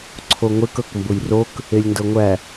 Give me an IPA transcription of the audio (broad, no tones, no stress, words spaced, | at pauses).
ǀʰoŋʷek ɤkmbʊjrok | elʲndɤŋʷæ